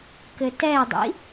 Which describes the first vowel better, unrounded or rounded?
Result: unrounded